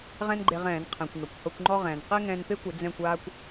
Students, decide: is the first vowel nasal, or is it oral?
nasal